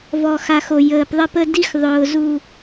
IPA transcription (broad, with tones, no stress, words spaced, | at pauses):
vɔ˨xa˨xo˨ jəː˨pðˤə˦pə˦ di˦x ðˤʊː˨zu˨